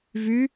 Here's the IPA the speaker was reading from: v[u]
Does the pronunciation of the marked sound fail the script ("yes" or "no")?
yes